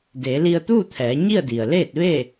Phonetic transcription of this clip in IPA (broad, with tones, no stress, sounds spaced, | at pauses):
d e˩˧ l i˧ ə̯ t̪ u˥˨ t̪ʰ ɛː˩˧ ɲ i˥˨ ə̯ d i˩ ə̯ l eː˥˨ t̚ ʋ e˥˨